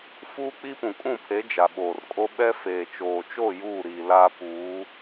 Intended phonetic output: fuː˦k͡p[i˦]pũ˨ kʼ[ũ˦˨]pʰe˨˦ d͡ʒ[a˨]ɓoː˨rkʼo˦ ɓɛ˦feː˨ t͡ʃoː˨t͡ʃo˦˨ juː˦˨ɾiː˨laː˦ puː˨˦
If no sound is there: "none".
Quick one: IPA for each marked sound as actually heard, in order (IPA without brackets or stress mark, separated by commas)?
i˦, ũ˦˨, a˨